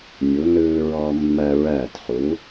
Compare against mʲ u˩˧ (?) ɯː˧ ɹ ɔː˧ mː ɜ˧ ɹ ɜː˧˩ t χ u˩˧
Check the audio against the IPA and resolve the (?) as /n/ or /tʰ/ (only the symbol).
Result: n